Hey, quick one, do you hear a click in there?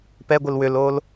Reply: no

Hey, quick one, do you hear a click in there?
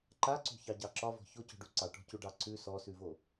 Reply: yes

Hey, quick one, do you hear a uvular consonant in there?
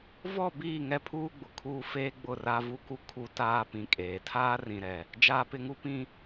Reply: no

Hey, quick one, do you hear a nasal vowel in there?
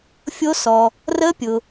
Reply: no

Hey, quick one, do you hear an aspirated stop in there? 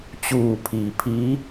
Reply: yes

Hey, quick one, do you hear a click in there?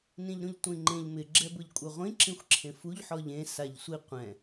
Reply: yes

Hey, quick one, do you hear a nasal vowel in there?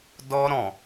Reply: yes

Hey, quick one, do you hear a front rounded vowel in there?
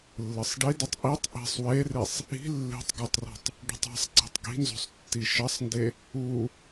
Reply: no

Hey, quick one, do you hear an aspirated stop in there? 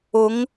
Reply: no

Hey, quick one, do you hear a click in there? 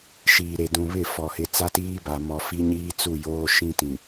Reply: no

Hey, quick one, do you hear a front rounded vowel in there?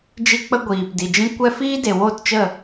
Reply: no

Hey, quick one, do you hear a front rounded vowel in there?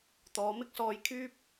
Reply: yes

